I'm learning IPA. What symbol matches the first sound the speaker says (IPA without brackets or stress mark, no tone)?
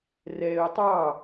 r